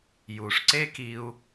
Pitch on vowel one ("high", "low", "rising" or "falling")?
low